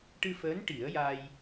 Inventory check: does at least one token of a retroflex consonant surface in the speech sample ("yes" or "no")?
yes